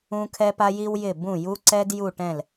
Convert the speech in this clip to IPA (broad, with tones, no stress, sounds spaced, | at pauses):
ũ˧ kʰ ɛ˧ p a˧ j i˧ w j ɪ˧˩ b ũ˧˩ j u˧ ǀ ɛ˧ d j u˧˩ ʈ ɛ̃˧˩ l